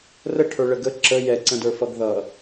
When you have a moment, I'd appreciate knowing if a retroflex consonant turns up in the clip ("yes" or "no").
yes